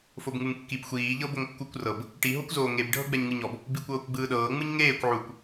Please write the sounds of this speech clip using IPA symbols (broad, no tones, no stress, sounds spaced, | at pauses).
f o b ŋ u ŋ kː i b xʷ iː ʎ ɤ b o ŋ kː u kʷ r ɤ b | ʈ i ɦ o kʷ z oː ŋ e b ɖʱ ɤ ɡ͡b ɛ ɲ ŋ ɯ ɲ ɔ b | b i kʷ ɤː kʷ ɡ͡b ɯː ɗ ɤː ŋ͡m ɯ ɲ ŋ eː kʷ ʕ u kʷ